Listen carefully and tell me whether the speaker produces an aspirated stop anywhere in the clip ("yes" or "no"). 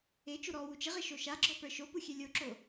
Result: no